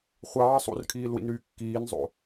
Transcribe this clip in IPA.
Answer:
χʷɑː sˤṵrkʰiːlwḭnɾyː kːiːnzˤo̰

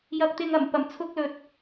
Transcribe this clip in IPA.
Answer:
jɐ˧k̚t̪ɪ˧ŋɐ˨˩m pɐ˨˩mt͡sʰʊ˧k̚lɵ˨˥t̚

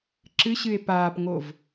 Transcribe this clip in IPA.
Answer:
ǁɨɕɨe̯ paːpŋov

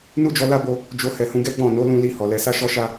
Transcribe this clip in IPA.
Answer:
nu˦d͡ʒɔ˧ la˦bo˧ | d͡ʒo˧hɛ˨hũ˧ɡɛ˦ ɡ͡bɔ̃˦˨ no˨˦lũ˧li˧ hɔ˨lɛ˧ sa˦ʃɔ˦ʃa˦

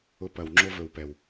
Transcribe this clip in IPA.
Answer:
ʊ˧pɐ˨w ŋ͡ǁo˦vɵ˨wpɛ˨w

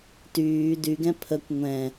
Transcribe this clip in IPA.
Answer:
tyː dyɡɛ̃ pʰəkʷ ŋʷɛ̃

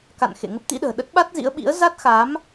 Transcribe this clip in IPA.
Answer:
ka̰˧˨nxḛ˧˨ ŋə˦˥p̚t̪ḭ˧˥ɗə̤ː˨˩ ɗə˦˥t̚ɓa˦˥t̚zḭ˧˥ə̯ɓḭ˧˥ə̯ za˦˥t̚xa˨˦m

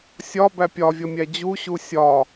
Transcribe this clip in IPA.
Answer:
sʲɒbæ pʲɒvʲʌmʲæ d͡ʑuɕu sʲɒ

